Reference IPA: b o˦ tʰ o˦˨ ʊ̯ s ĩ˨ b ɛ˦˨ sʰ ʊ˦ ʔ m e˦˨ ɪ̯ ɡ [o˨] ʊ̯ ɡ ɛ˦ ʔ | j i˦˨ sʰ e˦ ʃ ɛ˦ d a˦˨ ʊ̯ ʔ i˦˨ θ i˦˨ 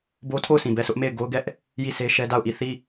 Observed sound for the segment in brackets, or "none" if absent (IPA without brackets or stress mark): o˦